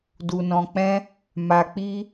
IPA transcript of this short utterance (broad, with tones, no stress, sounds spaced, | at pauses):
d u˧ n ɔ̃˧ k͡p ɛ̃˦ | m a˧ k͡p i˦